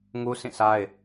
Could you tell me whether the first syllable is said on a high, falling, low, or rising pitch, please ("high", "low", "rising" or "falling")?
high